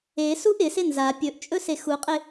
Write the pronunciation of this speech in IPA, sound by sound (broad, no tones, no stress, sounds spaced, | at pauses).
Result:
e s u ʔ ɪ s ɪ n z a pʲ ɵ ʔ t͡ʃʼ ɵ s e x u qʼ ɪ